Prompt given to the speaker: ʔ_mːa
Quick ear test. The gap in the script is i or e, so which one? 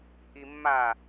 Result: i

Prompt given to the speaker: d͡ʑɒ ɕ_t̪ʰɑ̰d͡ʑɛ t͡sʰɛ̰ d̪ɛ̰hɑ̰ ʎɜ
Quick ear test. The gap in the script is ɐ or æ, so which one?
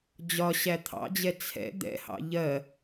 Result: æ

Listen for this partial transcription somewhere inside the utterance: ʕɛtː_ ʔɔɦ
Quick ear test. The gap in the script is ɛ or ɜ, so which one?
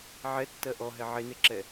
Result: ɜ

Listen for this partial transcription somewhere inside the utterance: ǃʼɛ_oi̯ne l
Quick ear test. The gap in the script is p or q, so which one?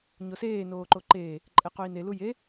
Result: q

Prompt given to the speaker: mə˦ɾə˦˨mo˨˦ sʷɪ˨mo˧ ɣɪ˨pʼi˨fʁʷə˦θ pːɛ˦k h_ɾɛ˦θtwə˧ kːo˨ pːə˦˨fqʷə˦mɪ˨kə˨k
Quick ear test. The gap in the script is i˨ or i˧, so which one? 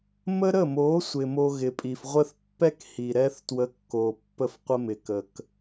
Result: i˨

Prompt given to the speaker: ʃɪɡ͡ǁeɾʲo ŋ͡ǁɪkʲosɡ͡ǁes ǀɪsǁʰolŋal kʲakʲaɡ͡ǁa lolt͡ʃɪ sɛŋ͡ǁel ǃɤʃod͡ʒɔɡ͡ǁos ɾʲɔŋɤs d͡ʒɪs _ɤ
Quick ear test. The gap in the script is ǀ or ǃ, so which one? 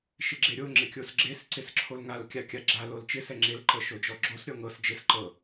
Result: ǃ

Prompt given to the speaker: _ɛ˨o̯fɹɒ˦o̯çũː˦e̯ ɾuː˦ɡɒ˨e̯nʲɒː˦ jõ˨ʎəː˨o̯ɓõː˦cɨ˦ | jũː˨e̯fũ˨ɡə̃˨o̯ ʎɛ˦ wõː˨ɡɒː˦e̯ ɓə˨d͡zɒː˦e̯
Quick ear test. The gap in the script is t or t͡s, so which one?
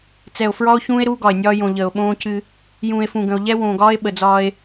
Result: t͡s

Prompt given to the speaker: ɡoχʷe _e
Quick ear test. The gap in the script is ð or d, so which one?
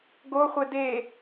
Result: d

